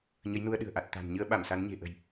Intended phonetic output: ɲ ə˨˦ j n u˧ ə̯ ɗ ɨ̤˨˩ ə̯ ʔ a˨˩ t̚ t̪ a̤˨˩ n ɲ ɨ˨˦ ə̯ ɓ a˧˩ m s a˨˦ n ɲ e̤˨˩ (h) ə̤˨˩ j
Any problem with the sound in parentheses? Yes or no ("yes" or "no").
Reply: yes